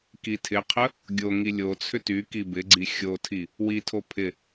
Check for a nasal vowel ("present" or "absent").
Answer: absent